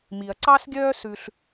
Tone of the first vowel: low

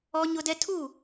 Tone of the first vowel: high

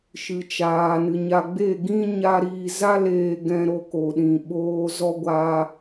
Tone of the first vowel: low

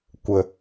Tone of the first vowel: low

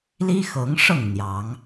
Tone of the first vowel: high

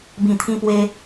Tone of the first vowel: low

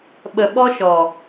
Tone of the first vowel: low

